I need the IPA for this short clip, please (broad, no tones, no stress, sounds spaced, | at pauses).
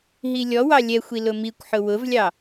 ɦ i lʲ ɔ w ɑ lʲ ɛ xʷ i l ʊ m i kʷ ħ ʊ w ʊ v lʲ ɑ